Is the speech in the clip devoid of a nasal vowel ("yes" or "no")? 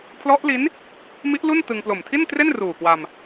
yes